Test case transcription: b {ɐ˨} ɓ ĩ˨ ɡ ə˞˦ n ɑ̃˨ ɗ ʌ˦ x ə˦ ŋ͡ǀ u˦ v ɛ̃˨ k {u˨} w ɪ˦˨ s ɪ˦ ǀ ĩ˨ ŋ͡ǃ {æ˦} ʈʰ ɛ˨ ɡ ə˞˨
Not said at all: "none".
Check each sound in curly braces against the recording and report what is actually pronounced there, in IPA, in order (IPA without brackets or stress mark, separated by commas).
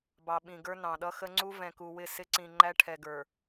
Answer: ɑ˨, u˨, æ˦